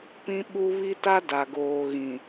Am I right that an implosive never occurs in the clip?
no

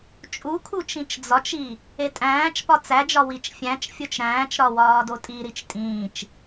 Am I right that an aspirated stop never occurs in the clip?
no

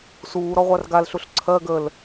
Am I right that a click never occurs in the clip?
no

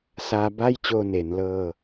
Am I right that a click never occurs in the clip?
yes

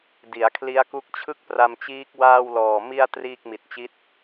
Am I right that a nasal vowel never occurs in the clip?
yes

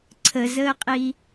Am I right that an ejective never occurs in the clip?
no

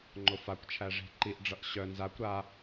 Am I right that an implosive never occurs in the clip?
yes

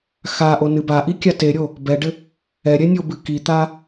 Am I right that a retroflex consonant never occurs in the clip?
no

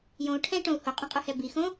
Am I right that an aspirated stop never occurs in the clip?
no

